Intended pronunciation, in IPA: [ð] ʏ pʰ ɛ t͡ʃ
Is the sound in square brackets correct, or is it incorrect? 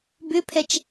incorrect